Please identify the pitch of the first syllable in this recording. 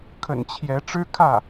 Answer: low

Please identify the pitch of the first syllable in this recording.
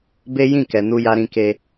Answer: high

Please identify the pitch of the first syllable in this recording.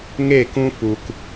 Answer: falling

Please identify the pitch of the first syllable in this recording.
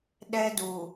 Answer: high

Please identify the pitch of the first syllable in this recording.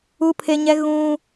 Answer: high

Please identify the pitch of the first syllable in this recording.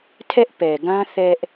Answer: high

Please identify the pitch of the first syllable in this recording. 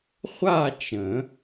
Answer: falling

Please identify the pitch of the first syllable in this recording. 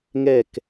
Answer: falling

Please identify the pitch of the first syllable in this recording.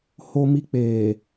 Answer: high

